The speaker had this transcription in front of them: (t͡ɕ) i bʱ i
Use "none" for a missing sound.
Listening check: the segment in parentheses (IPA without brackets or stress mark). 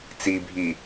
t͡s